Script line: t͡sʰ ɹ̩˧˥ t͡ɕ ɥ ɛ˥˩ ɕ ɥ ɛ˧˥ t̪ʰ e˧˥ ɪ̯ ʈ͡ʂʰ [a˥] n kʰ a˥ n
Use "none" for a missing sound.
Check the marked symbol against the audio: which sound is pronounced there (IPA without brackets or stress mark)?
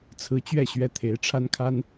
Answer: a˥